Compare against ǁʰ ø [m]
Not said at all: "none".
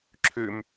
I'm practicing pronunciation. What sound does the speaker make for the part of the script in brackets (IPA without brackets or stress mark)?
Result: m